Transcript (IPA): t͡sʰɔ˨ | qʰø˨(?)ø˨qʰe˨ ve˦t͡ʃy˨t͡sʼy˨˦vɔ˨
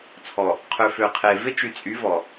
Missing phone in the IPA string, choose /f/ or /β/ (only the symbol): f